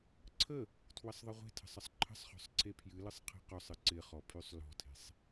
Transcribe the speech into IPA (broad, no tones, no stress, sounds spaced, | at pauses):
ǀʰ ə | tʰ w ə sˤ ðˤ ɪ ʁʷ e̤ tʰ ə̤ sˤ ə sˤ ǃʰ ə̤ sˤ χ ɔ̤ sˤ ǀʰ e pʰ j ɨ l ɯ sˤ qʰ e̤ q ɔ sˤ ɨ ǀ ɪ χ ɔ pʰ y sˤ l ɔ̤ tʰ e̤ sˤ